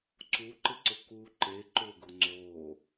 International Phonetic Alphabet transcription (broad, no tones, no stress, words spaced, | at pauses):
ǀuǃɪǀʊ ku ǃe ǃʊɡʊ ŋ͡ǀo